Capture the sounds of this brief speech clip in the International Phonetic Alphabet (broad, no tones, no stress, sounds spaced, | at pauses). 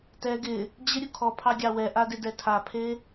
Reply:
t ɛ ɡ ɪ | d͡ʑ ɪ ɾʲ u kʰ ɔ pʰ ɑ ɡʲ ɑ w ɛ ʔ a d ɪ d ɛ tʰ a pʰ e